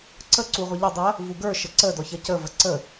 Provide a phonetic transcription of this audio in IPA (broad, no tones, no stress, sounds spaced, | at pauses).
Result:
ǀ ə ǀ u ʁʷ ə ʎ ə dˤ ɐ | v u ɡ ə˞ ʃ ə ǀ ə d ɔ ç ɐ c ə v ə ǀ ə